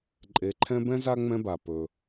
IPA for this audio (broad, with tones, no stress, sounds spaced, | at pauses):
ǃʼ e˨ ǃʰ ɛ̃˦ b ɛ̃˥ z a˥ ŋ͡m ɛ̃˦ b a˩ p ɵ˨